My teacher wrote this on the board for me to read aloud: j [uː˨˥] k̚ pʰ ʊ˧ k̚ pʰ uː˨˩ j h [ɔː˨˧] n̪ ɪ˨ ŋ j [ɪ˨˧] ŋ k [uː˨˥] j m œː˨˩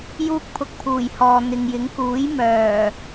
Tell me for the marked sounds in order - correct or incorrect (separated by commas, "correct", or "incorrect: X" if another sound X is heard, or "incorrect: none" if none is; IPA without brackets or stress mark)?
incorrect: uː˥, incorrect: ɔː˨, incorrect: ɪ˨˥, correct